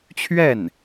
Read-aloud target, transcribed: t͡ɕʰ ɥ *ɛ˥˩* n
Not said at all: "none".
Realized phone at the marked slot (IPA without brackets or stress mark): ɛ˥˩